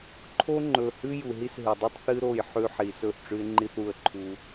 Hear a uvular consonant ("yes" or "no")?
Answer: no